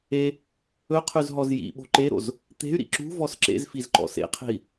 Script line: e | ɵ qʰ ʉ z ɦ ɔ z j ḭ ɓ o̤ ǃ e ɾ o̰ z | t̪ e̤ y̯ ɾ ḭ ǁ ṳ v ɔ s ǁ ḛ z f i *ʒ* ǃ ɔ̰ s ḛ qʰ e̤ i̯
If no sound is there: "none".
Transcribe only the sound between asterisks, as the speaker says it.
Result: z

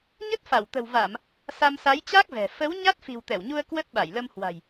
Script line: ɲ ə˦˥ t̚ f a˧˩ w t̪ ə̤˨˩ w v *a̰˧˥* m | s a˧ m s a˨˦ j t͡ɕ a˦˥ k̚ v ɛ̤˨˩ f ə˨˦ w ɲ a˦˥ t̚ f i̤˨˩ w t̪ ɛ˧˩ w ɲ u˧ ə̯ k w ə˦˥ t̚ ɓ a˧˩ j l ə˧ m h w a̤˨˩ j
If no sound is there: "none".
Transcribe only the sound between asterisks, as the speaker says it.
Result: a˧˩˨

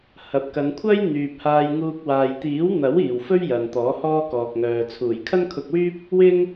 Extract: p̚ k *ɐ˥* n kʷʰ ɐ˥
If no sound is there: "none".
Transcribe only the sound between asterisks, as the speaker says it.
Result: ɐ˨˧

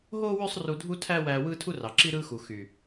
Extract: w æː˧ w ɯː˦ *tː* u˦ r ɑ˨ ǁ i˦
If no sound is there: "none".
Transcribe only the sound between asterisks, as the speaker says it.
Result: tʰ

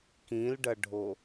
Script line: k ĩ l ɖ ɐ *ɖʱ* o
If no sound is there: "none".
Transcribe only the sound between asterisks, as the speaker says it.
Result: ɖʱ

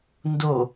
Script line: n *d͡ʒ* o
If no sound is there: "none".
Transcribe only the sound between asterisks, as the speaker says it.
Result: d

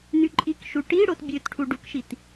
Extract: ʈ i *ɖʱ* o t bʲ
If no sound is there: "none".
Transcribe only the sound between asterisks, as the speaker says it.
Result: ɽ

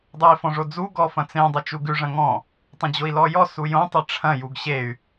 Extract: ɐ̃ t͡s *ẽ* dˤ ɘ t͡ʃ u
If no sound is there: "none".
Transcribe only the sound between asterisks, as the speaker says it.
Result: ẽ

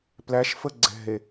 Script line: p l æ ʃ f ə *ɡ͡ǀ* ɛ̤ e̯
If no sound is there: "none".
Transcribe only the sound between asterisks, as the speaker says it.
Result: ɡ͡ǀ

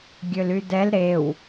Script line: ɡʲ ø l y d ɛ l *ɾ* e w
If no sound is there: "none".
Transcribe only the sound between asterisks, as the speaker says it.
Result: ɾ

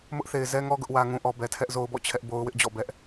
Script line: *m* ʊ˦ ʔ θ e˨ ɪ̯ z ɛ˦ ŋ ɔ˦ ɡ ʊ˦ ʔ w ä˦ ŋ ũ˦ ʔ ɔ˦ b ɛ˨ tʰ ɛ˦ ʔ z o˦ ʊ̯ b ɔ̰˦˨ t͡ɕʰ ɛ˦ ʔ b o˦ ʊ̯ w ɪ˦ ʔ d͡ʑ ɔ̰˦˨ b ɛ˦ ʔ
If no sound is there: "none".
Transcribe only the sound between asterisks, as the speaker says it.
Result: m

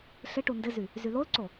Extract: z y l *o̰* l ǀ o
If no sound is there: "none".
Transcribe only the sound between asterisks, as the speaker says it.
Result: o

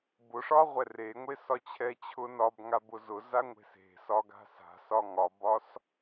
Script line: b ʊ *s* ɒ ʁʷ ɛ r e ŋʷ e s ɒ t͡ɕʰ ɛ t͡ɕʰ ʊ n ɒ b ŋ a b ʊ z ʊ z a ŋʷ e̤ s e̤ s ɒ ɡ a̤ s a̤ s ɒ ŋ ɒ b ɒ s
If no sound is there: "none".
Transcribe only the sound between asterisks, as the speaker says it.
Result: ʂ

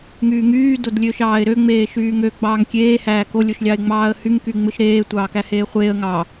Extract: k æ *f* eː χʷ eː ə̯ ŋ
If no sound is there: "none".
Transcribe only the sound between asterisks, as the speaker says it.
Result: h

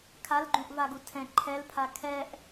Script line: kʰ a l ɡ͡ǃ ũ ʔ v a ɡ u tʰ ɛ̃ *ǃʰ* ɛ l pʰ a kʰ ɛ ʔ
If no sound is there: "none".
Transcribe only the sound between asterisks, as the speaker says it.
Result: ǃʰ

